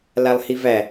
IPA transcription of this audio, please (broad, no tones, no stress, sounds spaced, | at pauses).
l a lˠ h i v æ